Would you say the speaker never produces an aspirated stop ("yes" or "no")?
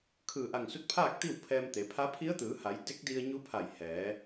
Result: no